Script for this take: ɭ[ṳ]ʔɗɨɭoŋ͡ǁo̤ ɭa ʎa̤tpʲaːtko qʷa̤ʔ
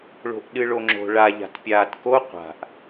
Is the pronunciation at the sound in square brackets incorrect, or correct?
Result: incorrect